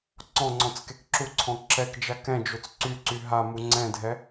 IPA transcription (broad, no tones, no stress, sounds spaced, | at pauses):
ǀ ɔ̃ ŋ͡ǀ ɔ̃ t͡s k e k ǁ u ǀʰ ɔ̃ ǁ ɛ k d͡ʒ a k ɛ̃ d͡ʒ o t͡s ǀ y ǀ y ɦ a m u ŋ͡ǀ ɛ̃ dʱ ɛ